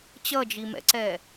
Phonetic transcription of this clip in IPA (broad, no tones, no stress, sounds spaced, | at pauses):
t͡ɕ ʌ d͡ʒ i m ɛ̰ ǀ ɛ